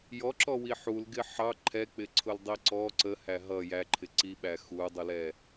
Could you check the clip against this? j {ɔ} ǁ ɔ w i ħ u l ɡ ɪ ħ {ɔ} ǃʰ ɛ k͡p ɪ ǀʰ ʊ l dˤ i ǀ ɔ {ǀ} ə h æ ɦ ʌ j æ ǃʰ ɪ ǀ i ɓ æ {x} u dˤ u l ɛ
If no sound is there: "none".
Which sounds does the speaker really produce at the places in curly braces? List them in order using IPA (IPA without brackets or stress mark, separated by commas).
ɔ, ɑ, ǀ, x